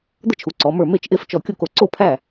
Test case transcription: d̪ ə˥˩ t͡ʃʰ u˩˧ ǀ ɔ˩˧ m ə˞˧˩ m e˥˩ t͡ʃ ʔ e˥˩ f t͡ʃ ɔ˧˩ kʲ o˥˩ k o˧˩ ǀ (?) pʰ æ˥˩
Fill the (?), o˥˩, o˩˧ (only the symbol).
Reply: o˥˩